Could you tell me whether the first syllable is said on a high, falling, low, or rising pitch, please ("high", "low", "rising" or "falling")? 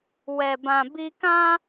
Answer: low